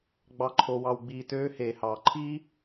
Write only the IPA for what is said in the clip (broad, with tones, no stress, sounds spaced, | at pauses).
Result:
ɡ͡b ɑ˧ ǃʰ o˧ w ɑ˧ w ɡ͡b iː˧ t øː˦ h eː˨ h ɑː˨ ǃʰ iː˦